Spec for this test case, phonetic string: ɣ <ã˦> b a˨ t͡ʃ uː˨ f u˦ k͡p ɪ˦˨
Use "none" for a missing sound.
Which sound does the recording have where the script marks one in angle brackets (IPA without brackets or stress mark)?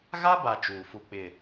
a˦